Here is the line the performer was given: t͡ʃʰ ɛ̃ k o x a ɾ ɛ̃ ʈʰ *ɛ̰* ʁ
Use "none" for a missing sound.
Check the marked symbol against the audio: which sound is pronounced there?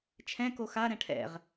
ɛ̰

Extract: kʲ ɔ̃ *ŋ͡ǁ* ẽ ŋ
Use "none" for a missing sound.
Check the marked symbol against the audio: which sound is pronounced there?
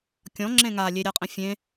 ŋ͡ǁ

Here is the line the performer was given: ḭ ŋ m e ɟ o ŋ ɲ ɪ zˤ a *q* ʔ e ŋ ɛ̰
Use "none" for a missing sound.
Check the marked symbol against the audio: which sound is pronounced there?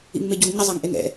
ŋ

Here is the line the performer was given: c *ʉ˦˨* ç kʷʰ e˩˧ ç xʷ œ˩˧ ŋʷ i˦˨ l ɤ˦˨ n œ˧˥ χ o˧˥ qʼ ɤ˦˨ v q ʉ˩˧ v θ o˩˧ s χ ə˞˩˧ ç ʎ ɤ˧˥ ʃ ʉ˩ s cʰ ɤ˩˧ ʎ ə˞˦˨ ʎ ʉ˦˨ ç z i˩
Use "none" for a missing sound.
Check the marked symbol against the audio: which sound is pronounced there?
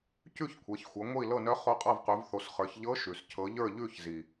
ʉ˦˨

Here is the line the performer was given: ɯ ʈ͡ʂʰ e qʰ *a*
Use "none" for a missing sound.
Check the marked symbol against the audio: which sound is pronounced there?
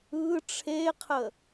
ə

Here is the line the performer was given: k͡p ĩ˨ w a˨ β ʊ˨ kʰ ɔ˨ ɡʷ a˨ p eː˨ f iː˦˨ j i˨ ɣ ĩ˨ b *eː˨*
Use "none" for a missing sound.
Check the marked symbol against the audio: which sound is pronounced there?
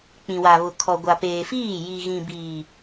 iː˨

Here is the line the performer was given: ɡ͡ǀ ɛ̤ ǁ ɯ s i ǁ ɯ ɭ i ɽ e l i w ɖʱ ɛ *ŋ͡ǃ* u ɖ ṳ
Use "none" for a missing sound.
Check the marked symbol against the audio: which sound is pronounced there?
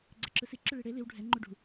ŋ͡ǃ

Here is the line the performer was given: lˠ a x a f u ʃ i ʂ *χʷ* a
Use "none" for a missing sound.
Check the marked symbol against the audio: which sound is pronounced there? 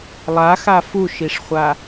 χʷ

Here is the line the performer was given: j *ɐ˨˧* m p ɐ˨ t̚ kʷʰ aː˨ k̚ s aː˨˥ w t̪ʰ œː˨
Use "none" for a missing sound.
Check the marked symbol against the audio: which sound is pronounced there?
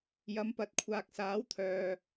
ɐ˨˧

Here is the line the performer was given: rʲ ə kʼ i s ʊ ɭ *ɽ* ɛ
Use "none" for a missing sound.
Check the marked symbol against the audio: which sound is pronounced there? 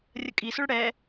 ɽ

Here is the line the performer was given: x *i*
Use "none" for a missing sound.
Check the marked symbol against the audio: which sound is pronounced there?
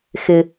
ɪ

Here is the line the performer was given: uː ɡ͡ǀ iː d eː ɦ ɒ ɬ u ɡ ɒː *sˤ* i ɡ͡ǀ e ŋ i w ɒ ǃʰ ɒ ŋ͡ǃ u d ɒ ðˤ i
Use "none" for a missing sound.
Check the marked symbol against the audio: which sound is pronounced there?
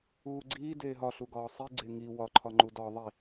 sˤ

